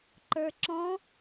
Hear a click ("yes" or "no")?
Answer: yes